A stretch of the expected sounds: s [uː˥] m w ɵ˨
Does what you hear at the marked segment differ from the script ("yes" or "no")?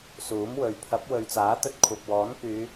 yes